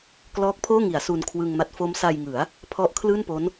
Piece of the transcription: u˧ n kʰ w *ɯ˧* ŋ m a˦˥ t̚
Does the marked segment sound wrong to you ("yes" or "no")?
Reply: no